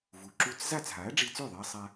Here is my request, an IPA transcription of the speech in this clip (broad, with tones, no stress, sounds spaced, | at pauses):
v u˩ ǁ u˧ t͡s z a˥˩ t͡s ɦ a˩˥ ɐ̯ ɖ͡ʐ i˧ t͡s ʉ˥˩ ðˤ e˧ ɐ̯ sˤ a˧